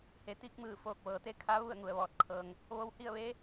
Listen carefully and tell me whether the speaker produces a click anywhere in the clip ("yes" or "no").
no